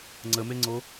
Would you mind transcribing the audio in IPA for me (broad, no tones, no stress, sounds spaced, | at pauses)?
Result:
ŋ͡ǀ ə m e ŋ͡ǀ o